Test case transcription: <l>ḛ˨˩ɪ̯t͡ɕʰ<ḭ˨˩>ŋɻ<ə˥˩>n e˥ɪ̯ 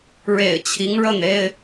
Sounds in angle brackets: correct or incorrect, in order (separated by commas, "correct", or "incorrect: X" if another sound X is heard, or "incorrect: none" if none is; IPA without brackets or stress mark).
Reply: incorrect: ɻ, incorrect: i˧˥, correct